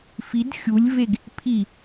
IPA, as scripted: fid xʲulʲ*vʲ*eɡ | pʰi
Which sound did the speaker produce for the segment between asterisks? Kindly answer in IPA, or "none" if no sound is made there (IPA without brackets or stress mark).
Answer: v